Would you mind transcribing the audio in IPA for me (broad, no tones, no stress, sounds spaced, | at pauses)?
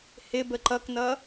h ɪ b ə ǃ ʌ k n ʌ